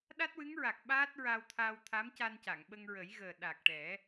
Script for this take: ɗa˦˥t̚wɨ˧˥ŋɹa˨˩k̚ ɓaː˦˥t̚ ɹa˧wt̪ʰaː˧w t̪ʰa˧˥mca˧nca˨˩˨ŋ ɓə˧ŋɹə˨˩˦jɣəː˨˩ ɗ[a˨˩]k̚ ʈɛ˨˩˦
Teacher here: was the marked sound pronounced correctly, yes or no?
yes